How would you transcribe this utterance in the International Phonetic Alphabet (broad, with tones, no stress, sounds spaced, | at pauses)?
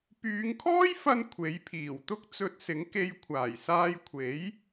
p yː˨˧ ŋ kʰ ɔː˥ j f ɐ˧ n kʷʰ e˨˥ j pʰ iː˨˩ w t̪ ʊ˥ k̚ t͡s ɵ˧ t̚ s ɪ˨˥ ŋ k e˧ j kʷʰ aː˨˩ j s aː˧ j kʷʰ e˨˥ j